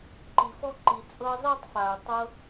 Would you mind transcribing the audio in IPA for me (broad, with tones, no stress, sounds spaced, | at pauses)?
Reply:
ǃ i˨ f ɔ˦ ǃ i˨ t͡sʼ ɤ˧ zˤ i˦˨ tˤ f a˨ ʊ̯ tˤ ɤ˧